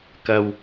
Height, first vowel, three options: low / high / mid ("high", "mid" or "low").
low